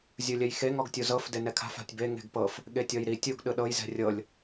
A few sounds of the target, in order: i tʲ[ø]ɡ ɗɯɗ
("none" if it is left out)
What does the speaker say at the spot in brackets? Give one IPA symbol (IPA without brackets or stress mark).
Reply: u